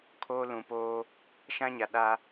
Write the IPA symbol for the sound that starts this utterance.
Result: kʰ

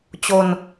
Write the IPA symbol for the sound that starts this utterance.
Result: t͡ɕ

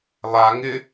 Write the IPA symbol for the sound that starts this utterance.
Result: lˠ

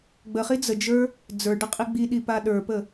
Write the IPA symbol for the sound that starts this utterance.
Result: ɡ͡b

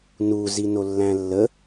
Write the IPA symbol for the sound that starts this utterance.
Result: n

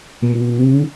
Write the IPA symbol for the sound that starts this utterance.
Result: m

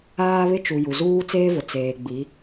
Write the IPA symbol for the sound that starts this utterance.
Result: aː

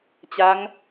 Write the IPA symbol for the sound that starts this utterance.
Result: t͡ɕ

